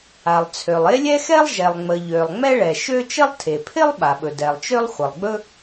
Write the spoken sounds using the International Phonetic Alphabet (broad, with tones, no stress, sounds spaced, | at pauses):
a˩ lˠ t͡sʰ ø˩ lˠ e˥ lʲ ɛ˥ x ɛ˥ lˠ ʒ ɛ˩ lˠ ŋ͡m ə˩ ʎ ø˩ lˠ ŋ͡m ɛ˥ ɭ ɛ˩ ʃ ø˥ t͡ʃ ə˥ lˠ tʰ e˩ pʰ ɪ˥ lˠ ɓ a˩ ɓ ɵ˩ d ɛ˩ lˠ t͡ʃ ø˥ lˠ χʷ ə˩ lˠ ɡ͡b ɵ˥